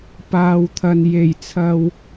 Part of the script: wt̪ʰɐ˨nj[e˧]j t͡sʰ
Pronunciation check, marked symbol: incorrect: e˨˩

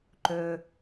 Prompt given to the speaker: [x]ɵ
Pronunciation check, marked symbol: incorrect: ǃ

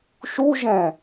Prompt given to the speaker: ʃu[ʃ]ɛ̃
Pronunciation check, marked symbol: incorrect: ʒ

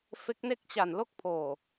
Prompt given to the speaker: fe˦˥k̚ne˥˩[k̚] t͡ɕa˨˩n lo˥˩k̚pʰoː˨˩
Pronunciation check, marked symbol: correct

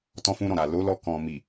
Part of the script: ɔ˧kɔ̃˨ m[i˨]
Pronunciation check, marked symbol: correct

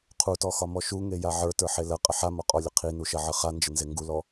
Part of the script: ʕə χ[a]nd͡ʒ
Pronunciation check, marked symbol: correct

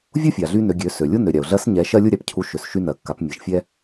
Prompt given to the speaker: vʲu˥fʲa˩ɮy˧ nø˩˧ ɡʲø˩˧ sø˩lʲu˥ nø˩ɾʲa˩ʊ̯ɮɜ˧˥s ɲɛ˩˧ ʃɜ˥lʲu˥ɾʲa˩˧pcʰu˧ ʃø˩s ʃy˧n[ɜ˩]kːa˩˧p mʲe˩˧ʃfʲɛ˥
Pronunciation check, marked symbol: correct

